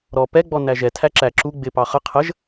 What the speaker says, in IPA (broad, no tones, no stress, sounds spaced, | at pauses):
ɾ ɔ p ɛ ɡ͡b ɔ n æ ʒ ɛ tʰ æ ǁ æ ǁ u ɡ͡b ɪ p ɑ χ ə qʰ ə ʒ